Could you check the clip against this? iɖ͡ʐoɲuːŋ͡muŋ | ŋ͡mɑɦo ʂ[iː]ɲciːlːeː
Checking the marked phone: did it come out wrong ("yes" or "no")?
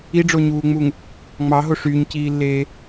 yes